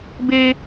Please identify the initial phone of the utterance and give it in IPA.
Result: b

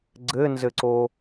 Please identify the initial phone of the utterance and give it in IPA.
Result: ɡ͡ǀ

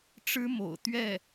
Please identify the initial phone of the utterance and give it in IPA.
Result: ʈ͡ʂ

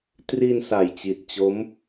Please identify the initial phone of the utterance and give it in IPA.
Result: t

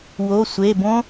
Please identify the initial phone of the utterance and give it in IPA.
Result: w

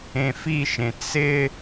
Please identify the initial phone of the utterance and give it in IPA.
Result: ẽ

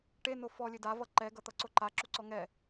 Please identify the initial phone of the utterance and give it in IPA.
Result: ʈ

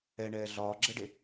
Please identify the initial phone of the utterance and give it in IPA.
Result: ɛ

